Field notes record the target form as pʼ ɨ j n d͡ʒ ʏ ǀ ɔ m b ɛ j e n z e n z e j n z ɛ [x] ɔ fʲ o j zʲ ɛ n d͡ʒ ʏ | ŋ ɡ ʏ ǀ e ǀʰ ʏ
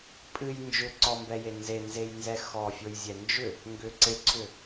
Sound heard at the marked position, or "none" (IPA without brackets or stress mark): x